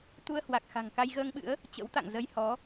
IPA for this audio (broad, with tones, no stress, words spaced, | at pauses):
t̪u˧ə̯hwa˨˩k̚ xa̤˨˩ŋka˧jɣəː˧ŋɓɨ̰˧˥ə̯ | t͡ɕə̰˧˥wt̪a̰˧˨ŋ zə˧jhɔ˨˦